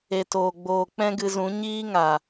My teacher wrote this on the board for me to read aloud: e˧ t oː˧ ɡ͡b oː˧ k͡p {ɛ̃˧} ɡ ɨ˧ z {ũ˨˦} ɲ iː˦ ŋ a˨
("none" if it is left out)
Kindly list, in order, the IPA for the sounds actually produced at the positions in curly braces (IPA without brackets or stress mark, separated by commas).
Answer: ɛ̃˦, ũ˨˦